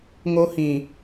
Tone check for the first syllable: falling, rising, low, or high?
high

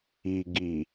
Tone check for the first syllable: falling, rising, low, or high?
low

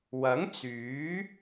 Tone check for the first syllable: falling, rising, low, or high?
rising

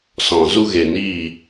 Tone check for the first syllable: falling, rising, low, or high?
low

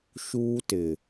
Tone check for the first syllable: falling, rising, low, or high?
high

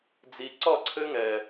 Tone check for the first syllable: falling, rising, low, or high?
low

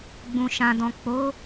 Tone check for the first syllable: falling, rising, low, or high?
low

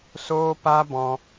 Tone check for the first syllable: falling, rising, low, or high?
high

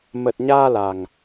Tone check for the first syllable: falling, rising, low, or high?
low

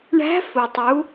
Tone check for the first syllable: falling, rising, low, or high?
rising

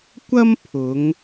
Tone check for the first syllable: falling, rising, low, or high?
high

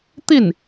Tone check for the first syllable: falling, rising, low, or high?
falling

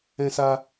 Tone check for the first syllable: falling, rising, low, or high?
high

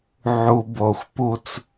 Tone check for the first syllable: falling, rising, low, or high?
low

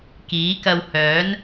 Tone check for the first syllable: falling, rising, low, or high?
rising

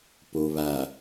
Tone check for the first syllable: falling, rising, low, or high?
low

